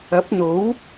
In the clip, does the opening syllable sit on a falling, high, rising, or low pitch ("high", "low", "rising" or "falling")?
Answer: rising